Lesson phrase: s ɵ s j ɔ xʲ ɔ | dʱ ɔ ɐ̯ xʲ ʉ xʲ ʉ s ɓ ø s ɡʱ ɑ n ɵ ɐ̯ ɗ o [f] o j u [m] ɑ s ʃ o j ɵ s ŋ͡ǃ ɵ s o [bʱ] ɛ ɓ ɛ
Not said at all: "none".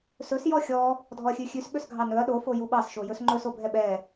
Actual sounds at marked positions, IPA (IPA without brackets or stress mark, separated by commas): f, ɓ, bʱ